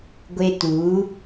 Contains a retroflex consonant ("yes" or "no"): no